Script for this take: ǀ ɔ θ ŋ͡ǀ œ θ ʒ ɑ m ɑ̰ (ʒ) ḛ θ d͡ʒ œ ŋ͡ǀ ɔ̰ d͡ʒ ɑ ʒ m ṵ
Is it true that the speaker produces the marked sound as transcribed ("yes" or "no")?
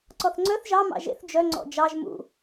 yes